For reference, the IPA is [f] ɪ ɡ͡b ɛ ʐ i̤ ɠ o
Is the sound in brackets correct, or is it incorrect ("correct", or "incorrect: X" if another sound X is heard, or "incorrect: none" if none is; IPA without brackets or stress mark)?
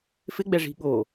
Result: correct